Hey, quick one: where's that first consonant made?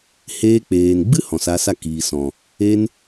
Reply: throat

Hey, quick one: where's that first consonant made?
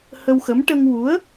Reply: throat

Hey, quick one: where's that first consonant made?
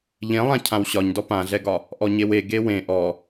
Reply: palate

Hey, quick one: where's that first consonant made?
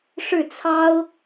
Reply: retroflex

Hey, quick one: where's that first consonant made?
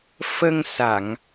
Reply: lips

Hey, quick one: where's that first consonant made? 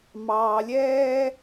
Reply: lips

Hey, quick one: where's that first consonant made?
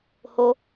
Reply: throat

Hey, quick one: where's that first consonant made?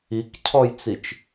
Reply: velum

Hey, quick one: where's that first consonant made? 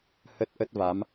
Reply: throat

